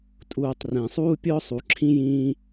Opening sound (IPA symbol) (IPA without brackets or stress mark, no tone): tʼ